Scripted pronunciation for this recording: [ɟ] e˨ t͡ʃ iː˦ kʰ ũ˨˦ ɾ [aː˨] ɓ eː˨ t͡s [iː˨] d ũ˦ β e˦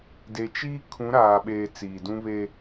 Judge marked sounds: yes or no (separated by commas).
no, yes, yes